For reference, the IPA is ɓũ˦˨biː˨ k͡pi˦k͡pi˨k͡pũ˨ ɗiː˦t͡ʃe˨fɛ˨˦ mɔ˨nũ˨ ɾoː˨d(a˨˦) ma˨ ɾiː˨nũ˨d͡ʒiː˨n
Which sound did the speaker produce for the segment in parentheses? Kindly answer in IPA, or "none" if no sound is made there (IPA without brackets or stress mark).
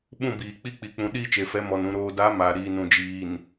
a˨˦